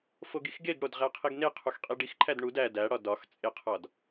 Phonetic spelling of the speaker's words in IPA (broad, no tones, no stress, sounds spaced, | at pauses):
f o ɡ i x ɡ e ɡ ɽ o d ʁ æ qʰ i ɡ n e qʰ u x qʼ i ɖ i x ǃʰ æ d ɳ u d æ d æ ɽ ɒ d ɒ x t͡sʼ e qʰ ɒ d